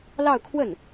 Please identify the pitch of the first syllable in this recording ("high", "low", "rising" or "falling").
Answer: falling